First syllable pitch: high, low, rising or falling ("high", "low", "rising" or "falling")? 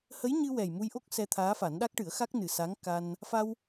rising